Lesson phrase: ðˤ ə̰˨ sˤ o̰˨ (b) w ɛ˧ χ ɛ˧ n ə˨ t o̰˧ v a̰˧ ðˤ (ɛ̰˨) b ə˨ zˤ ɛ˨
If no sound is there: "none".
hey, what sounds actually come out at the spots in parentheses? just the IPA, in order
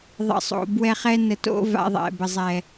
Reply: b, ɛ̰˨

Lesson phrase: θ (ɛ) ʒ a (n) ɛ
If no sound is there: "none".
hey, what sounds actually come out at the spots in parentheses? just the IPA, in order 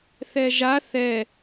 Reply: ɛ, θ

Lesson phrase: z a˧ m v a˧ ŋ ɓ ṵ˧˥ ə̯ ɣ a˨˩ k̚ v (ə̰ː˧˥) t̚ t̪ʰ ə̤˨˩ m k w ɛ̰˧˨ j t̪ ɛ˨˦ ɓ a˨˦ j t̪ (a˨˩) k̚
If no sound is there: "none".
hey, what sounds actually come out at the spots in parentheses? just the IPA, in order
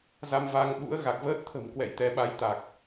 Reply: əː˦˥, a˨˩

